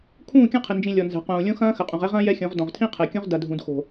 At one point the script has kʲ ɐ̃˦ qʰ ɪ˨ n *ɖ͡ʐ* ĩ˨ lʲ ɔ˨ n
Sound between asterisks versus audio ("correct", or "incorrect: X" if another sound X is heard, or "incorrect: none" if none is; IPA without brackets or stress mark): incorrect: d͡ʒ